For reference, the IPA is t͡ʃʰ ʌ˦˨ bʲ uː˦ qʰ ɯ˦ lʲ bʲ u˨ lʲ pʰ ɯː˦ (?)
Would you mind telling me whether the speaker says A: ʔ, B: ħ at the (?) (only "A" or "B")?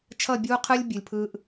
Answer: A